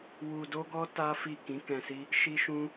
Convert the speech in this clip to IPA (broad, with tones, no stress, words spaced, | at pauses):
wu˧ do˦ɡɔ˦ ta˦fi˦˨ kĩ˨˦kɛ̃˧si˦ | ʃi˦ʃũ˦